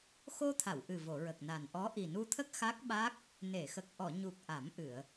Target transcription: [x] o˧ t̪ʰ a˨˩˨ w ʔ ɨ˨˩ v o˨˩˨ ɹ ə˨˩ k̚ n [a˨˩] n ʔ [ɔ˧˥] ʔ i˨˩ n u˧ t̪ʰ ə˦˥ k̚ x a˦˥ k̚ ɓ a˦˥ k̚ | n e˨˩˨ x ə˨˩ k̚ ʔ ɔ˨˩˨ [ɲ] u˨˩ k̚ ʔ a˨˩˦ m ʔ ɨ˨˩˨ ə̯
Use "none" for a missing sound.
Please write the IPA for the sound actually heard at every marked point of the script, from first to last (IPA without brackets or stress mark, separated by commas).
x, a˨˩, ɔ˧˥, ɲ